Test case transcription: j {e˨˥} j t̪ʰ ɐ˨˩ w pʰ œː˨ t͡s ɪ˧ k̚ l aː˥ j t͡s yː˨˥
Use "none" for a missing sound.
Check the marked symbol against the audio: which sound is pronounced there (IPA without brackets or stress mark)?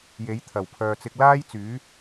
e˨˥